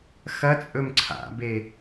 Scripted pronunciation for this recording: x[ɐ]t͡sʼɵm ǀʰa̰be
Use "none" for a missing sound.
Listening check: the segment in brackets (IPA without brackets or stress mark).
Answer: ɐ